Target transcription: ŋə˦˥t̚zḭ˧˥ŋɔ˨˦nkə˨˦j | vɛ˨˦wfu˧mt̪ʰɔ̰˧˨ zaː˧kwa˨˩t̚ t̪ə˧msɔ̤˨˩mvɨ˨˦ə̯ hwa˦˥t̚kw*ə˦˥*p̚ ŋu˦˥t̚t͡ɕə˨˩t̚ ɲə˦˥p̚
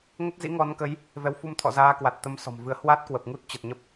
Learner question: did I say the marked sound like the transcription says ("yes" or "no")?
no